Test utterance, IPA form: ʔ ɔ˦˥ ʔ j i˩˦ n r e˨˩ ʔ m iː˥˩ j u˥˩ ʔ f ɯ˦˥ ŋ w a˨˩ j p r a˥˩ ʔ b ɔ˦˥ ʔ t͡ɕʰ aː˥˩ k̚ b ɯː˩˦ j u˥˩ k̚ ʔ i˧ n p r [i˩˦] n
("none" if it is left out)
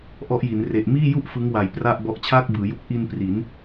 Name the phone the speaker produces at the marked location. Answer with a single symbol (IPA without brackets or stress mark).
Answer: i˩˦